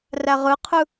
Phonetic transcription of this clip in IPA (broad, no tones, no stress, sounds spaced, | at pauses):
r æ ʁ ɯ qʰ ɯ